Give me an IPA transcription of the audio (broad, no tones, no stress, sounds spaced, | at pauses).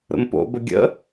ɾ ə̰ m p o̰ b ə ɡʲ ə̰